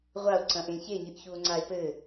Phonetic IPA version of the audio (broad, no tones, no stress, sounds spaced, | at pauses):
ʁʷ a o̯ ǀ ɐ̃ ʔ ẽ ç e ɲ ɨ ʔ ç u o̯ ŋ͡ǀ a e̯ p ɘ